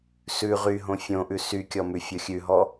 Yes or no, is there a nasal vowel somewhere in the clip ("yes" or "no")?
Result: yes